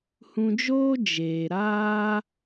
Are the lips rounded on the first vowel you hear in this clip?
yes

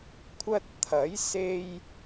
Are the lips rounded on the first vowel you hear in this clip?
no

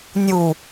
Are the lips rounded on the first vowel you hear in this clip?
yes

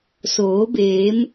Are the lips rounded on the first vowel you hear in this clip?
yes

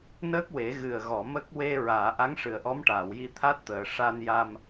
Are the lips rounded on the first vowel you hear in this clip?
no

